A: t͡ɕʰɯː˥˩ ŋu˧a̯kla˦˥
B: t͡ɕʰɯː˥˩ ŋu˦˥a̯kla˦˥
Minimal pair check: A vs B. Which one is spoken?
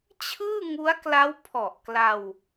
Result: B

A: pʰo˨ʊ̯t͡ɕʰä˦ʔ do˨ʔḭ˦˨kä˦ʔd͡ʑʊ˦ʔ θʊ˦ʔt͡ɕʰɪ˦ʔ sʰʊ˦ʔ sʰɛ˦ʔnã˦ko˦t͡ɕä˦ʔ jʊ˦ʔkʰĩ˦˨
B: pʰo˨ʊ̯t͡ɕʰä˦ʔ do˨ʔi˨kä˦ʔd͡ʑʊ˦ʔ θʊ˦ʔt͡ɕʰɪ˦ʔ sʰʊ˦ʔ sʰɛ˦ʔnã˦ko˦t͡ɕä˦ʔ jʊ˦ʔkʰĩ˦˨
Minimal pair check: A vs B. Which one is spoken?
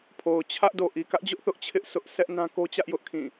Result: B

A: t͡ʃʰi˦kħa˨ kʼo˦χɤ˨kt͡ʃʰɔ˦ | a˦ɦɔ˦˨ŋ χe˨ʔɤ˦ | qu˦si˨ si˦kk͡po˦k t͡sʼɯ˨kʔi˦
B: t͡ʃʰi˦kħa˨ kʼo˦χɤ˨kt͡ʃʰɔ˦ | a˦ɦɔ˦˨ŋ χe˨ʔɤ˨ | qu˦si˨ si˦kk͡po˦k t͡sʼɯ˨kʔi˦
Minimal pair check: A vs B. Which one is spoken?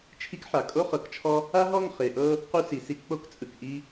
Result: A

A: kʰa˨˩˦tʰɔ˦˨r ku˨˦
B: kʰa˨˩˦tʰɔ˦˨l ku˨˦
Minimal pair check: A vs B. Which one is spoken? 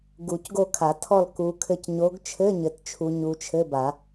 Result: B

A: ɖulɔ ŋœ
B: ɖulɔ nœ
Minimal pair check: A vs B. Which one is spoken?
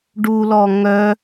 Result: A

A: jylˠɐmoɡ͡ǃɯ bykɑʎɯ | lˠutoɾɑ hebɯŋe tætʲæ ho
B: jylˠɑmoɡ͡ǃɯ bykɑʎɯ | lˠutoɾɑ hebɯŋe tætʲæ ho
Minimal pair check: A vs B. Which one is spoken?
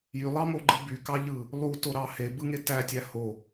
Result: B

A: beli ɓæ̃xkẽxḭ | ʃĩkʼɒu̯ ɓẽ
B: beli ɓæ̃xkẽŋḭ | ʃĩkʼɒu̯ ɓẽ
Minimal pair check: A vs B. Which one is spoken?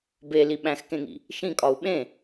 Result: B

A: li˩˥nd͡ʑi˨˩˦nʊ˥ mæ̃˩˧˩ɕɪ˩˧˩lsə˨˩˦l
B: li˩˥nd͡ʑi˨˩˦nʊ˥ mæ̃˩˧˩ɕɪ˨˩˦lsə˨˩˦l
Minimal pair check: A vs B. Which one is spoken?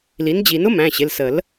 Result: A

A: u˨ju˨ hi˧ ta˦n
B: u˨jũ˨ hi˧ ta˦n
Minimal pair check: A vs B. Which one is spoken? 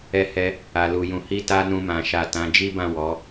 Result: B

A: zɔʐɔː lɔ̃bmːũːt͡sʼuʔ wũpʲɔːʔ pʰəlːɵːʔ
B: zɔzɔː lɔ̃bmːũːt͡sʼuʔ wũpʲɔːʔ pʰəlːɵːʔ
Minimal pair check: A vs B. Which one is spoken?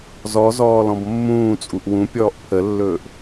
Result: B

